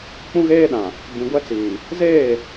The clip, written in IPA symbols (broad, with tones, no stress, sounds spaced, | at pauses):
k͡p ũ˦ ɣ eː˦ ɗ ã˨ | b ĩ˨ ɡʷ ɛ˦ t͡s iː˨ | z eː˦˨